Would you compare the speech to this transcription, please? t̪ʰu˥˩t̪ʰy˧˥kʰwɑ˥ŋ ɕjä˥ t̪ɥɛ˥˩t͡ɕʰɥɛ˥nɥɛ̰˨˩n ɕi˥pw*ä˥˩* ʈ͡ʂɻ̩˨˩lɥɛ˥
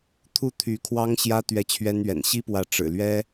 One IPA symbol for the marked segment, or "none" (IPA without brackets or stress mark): ä˧˥